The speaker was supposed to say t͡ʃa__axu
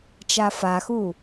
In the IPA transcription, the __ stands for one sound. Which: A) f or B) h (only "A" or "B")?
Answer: A